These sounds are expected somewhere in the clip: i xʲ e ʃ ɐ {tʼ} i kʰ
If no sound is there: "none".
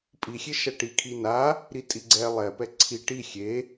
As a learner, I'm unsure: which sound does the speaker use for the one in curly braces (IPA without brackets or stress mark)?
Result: ʈ